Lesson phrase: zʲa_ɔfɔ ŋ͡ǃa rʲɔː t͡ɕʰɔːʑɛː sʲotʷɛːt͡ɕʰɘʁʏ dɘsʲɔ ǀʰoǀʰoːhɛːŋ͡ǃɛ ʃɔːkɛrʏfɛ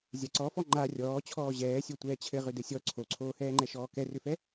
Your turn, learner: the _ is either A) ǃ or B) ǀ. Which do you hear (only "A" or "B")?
B